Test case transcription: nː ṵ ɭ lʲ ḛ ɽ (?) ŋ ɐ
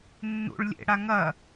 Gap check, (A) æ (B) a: B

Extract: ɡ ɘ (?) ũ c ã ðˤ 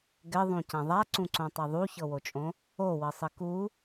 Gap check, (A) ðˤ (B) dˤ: A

